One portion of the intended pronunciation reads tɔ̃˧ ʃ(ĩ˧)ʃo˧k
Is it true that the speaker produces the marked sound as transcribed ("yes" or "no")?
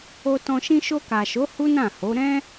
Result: yes